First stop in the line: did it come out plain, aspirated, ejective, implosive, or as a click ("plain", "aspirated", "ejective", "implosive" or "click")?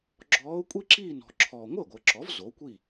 click